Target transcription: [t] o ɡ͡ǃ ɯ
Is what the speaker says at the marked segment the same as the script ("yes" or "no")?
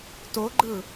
yes